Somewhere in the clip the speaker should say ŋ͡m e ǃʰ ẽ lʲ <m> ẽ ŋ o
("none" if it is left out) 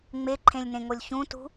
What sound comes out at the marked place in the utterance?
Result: n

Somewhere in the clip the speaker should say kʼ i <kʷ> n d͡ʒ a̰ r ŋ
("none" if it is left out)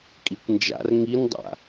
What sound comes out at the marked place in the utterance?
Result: kʷ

